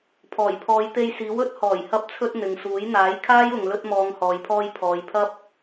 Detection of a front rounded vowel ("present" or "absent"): absent